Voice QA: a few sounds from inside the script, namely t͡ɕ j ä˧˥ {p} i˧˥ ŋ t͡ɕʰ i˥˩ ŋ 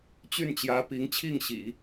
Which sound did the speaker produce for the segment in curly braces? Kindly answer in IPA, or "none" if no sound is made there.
p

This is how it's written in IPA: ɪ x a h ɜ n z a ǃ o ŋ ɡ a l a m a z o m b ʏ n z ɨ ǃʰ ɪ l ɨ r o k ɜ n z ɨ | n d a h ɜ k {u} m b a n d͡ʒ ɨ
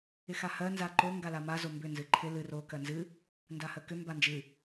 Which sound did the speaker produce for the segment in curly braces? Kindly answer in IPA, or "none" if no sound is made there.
ʏ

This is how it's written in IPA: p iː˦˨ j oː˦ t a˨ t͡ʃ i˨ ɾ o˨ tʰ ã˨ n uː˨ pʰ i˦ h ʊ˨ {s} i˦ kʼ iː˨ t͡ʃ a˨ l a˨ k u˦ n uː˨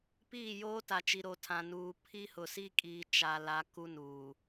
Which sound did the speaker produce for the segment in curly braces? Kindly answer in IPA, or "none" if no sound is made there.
s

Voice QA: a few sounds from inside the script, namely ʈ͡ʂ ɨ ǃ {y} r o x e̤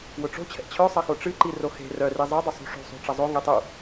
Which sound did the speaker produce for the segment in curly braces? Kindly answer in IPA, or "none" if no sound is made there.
i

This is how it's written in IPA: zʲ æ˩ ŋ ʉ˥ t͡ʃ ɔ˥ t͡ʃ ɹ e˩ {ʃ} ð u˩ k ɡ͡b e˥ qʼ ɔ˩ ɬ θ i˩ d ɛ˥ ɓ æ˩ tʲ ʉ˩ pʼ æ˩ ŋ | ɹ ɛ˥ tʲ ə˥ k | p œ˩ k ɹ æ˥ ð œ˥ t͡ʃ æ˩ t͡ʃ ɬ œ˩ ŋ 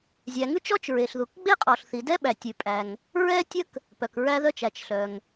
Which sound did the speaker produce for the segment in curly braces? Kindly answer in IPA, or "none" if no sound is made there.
ɬ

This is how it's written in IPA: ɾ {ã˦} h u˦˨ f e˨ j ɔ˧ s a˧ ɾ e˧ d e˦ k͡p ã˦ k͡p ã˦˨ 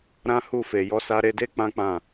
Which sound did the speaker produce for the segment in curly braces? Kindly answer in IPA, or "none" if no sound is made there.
ã˦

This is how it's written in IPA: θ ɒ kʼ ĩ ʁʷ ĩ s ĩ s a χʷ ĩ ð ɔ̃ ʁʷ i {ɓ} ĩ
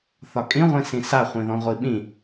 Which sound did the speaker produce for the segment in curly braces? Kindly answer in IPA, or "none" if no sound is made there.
ɓ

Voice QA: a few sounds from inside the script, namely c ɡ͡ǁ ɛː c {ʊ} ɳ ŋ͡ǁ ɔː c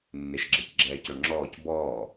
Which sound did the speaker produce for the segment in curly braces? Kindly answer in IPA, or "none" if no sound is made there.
ʊ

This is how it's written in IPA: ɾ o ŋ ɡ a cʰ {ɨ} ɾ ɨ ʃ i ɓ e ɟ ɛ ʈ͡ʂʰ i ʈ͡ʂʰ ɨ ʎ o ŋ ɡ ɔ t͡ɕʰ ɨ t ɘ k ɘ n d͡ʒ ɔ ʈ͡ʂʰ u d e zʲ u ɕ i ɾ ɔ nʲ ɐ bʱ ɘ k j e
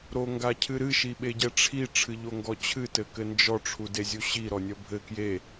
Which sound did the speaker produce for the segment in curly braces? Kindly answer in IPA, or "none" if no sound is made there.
ɨ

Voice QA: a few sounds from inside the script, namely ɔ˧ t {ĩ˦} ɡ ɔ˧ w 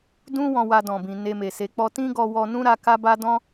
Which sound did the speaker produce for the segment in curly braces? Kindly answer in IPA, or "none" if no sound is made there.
ĩ˦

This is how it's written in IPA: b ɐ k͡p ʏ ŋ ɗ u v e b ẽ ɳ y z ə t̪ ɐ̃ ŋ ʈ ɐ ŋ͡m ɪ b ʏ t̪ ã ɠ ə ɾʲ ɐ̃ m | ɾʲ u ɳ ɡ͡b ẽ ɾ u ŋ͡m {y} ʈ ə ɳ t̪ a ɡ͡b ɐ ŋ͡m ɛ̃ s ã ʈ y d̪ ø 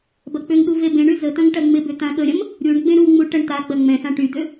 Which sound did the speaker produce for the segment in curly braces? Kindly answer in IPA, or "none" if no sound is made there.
u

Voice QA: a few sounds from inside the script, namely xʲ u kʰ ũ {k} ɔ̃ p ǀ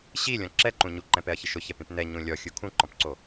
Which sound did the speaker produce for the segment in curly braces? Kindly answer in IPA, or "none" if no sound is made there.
ǃ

